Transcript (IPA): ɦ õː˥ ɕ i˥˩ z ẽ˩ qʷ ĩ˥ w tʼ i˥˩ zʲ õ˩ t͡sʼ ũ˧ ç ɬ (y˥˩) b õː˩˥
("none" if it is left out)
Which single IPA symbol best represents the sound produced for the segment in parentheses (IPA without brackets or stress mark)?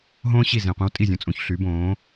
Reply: y˩˥